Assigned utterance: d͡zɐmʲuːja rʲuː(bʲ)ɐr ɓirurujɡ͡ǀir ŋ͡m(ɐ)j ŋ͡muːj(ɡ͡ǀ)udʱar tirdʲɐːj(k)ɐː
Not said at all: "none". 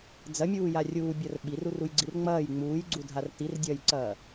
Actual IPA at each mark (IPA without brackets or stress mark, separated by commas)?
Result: bʲ, ɐː, ɡ͡ǀ, ǀ